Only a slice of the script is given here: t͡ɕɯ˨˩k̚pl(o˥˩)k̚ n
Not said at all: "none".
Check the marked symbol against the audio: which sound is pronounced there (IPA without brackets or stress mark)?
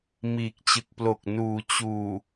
o˨˩